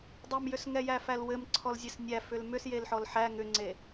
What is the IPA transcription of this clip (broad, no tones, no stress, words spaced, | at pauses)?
dˤɛmjʏs ŋɛjæfælwɘm ǀʰɔlzʲesnʲæ fʏlmʏs jelħɔlħæ ŋʏŋ͡ǀe